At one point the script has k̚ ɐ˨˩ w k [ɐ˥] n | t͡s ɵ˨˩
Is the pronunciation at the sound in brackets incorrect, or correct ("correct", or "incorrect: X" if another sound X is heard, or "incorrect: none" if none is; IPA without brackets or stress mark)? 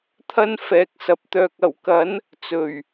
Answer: incorrect: ɐ˨˥